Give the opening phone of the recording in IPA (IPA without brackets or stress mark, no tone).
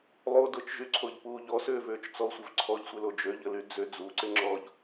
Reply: lˠ